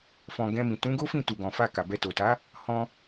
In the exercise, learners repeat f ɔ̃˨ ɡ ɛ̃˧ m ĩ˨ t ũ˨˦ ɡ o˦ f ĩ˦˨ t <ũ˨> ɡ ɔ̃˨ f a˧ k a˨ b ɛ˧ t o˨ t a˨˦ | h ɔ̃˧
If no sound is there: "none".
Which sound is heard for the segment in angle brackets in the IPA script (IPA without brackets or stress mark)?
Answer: u˨